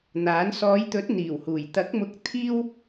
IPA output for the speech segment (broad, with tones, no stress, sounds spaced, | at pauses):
n̪ aː˨˥ n s ɔː˨˧ j t̪ ɵ˨˥ t̚ n̪ iː˨˩ w h uː˨˩ j t̪ ɐ˨˥ k̚ m ʊ˧ k̚ t̪ʰ iː˥ w